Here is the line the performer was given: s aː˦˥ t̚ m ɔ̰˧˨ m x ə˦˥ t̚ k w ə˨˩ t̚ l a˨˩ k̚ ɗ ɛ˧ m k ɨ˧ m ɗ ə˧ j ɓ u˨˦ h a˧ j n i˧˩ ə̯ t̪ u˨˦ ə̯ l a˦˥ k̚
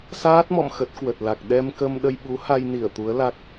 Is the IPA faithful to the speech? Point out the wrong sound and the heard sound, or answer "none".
ɨ˧ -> ə˧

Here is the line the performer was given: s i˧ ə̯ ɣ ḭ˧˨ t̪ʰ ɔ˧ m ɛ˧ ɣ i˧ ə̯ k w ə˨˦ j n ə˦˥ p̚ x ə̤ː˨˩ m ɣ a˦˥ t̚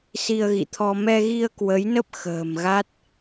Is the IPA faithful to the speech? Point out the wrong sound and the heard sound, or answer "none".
none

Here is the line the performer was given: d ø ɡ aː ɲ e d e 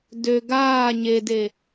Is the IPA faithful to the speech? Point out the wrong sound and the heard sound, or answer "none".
none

